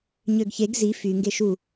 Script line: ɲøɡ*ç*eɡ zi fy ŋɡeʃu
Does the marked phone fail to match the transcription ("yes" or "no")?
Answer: no